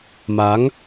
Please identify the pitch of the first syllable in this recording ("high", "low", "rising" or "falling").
rising